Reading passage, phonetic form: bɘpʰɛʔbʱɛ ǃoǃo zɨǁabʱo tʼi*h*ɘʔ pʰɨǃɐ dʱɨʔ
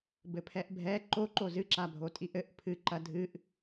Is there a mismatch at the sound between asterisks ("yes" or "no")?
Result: yes